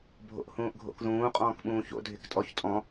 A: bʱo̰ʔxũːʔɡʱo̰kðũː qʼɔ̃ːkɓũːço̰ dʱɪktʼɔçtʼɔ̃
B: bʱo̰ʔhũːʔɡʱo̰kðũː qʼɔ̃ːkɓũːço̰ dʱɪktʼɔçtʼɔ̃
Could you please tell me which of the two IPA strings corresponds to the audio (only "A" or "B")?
B